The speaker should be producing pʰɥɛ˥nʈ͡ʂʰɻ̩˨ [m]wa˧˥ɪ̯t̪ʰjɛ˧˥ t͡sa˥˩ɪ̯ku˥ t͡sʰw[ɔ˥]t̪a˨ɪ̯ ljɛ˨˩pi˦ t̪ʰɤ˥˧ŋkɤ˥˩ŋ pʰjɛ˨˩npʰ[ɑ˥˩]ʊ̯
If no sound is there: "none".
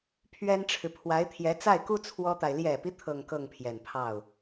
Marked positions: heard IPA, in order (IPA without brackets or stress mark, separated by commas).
pʰ, ɔ˥, ɑ˥˩